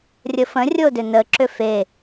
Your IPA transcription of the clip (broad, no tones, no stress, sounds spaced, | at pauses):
rʲ ə f ə̃ rʲ o d ʏ n ə ǁ ʏ f e